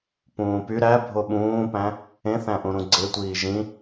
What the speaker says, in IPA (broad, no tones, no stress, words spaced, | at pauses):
pũːpy ɾæ bʱoɓũːpæ̃ | ẽθæ̃ʔũ ɾũɡ͡ǀetʷiː ʒĩ